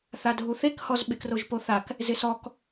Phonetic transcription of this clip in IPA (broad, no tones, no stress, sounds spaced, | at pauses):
θ a dʱ u θ e k h ɔ z ɓ ɪ k r o ʒ p o θ a k | z ɪ s ɔ k